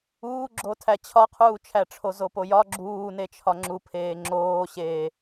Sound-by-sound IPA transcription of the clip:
uːɡ͡ǁotʰæ t͡ɕʰɒqʰuːt͡ʃʰæʈ͡ʂʰo zopojɒ ɡ͡ǁuːne t͡ʃʰɒŋ͡ǁupʰeː ŋ͡ǁoːɕeː

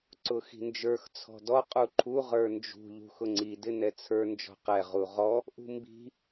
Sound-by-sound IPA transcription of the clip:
ǀʊxi̤nd͡ʒə˞x t͡sʰɔ̤dɔ qʼuǃʰu ʁə˞nd͡ʒṳ ʎṳxʊŋ͡ǀi dɪnɛt͡sʰə˞ nd͡ʒɔ̤qɛ ʁuʁɔ | ʔṳmbi̤

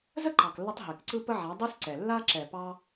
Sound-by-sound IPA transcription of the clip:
zə˦ǃɑ˨klːə˧tˤ ɦɛ˨kǀɯ˦ pə˦ʕa˨˦ dˤɛ˦s ǀɛ˨ lːa˦ ǁɛ˨pɑ˧

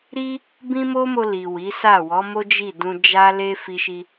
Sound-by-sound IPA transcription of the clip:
ɾi˦ | bĩ˦mo˦mo˧ li˨ wi˨˦sa˦˨ wɔ˨˦mo˦d͡ʒi˦˨dũ˧ d͡ʒa˦le˦ fi˦ʃi˦

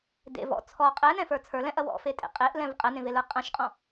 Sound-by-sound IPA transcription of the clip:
dḛ vɔ̰ t͡sʰɔ qʼɛnɛ̃fə˞ t͡sʰə˞lɛ̃ʔɐ wɔ̰fetʼḛ qʼeʔlɛ̃v qʼɛnẽvelə˞ qʼɐ̃ʃqʼɔ̃

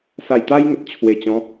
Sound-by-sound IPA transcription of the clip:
sa˨˩jt̪a˧jŋə˨t̚ t͡ɕʰwe˨˩t͡ɕɔ̃˨˦

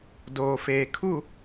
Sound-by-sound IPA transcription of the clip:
doː˨feː˨kʰu˦˨

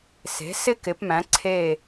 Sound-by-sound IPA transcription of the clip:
se̤˩˧ sɪ˦kɪ˩˧pmæ̃˩˧ ǀʰe˧˩

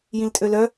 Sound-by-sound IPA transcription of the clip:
jĩltʼølœ

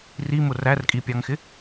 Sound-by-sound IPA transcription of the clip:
rimʊ rærkʼipʲɑŋxɪ

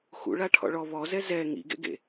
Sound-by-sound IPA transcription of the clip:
xṵɭa ʈʰɔ̰ɭɔ βɔzɛ zɛ ŋḭɡḛɡḛ

